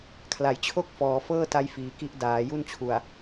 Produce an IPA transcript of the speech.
kʰ l a˩˦ j t͡ɕʰ o˥˩ k̚ f ɔː˩˦ f ɤː˥˩ t a˦˥ j f iː˩˦ k i˦˥ ʔ d aː˩˦ j u˥˩ n t͡ɕʰ u˨˩ a̯

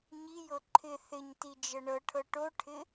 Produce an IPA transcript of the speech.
ɲ i j ɤ ǃʰ ɪ θ ɪ ɲ t i d͡ʒ ɤ ɳ ɤ ʈʰ ɤ ʈ o ʈʰ ɪ

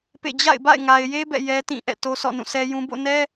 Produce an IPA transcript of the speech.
p ḛ˦˨ d͡ʑ a̰˦˨ ɪ̯ b a̰˦˨ ɪ̯ ŋ a˨ ɪ̯ j e˦ b ɛ̰˦˨ j ɛ˦ t ĩ˦˨ ʔ ɛ̰˦˨ t o˦ sʰ ɔ̰˦˨ n ũ˦˨ sʰ ɛ˦ j ũ˦ b o̰˦˨ n ɛ˦

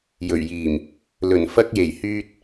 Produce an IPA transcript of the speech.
j ɵ˨˩ ɥ j iː˨˩ m | l ɵ˨˩ n f ɐ˧ k̚ j e˨˩ j h yː˧ t̚

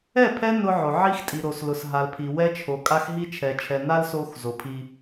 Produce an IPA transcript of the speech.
ɛ˦˨ pʰ ɛ˦ n ʊ˦ ʕ o˨ ʕ i˦ x tʼ i˨ ɾ o˨ s l ʊ˨ s ɦ a˨ l pʰ i˨ w ɛ˦ t͡ʃʰ o˨ kʼ a˦ x ɦ i˦ t͡ʃʰ ɛ˨ t͡ʃʰ ɛ˨ n a˦ l s o˦ x z o˨ pʰ i˦

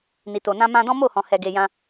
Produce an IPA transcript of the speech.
n i˨ t o˨ n ã˧ m ã˧ d ɔ̃˦ m o˦˨ h ɔ̃˨ h ɛ˨ ɡ e˨ j ã˧

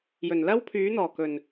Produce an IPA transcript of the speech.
j ɵ˨˩ n l ɐ˥ w pʰ yː˨˥ n̪ ɔː˨˩ k ɵ˨˩ n

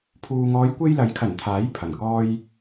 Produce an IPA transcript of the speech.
pʰ uː˧ ŋ ɔː˨˧ j kʷ e˧ j l ɐ˨˥ j kʰ ɐ˨˩ n t̪ʰ aː˨˥ j pʰ ɐ˨˩ n k ɔː˧ j

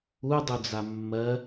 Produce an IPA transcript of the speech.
u dˤ u d͡z a mː ɜ

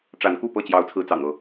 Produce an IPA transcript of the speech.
ʈ͡ʂ a˨˦ n k u˥˨ p ɤ˥˨ t͡ɕ j ɑ˨˦ ʊ̯ t͡sʰ ɹ̩˨˦ t͡s ɑ̰˨˩ ŋ ɤ˥˨

